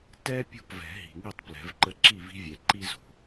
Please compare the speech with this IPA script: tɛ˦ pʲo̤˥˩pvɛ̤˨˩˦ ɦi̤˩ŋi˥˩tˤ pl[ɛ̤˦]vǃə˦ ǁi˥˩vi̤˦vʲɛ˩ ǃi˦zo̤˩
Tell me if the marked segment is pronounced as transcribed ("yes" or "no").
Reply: no